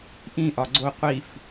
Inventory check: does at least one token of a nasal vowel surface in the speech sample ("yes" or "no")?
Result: yes